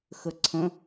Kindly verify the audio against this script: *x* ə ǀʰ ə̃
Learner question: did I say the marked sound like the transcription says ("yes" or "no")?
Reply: yes